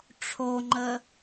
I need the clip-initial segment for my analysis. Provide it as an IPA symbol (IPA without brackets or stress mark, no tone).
ʈ͡ʂʰ